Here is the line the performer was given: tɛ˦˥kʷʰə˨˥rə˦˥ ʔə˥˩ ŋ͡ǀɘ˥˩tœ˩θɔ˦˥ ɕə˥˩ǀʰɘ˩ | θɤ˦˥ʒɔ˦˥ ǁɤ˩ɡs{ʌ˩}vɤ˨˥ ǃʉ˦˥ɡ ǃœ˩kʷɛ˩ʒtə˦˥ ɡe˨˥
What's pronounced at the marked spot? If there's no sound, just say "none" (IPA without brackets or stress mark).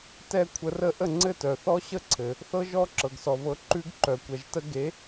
ɔ˩